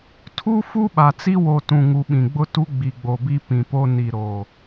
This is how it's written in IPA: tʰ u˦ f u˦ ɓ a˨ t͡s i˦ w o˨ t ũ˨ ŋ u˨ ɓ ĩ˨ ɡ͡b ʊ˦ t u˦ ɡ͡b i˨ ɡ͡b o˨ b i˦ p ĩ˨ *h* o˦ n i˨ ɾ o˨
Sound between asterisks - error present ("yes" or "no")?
yes